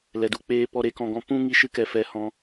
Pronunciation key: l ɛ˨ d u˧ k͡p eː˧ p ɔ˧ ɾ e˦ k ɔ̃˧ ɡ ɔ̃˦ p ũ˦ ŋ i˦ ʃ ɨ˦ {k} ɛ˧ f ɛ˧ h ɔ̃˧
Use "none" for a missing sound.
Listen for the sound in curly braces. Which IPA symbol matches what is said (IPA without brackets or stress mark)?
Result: k